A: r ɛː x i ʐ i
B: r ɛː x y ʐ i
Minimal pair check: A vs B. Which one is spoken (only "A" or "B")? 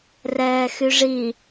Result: B